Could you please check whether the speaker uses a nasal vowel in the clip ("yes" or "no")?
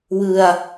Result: no